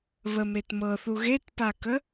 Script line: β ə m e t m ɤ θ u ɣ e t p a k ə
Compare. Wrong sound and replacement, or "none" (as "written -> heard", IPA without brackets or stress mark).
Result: none